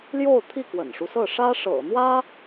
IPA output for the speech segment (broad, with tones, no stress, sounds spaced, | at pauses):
l j o˥˧ ʊ̯ t̪ʰ i˥˩ k w ə̰˨˩ n ʂ u˦ s ɤ˥˩ ʂ ä˥ ʂ ɤ̰˨˩ n̪ w ä˥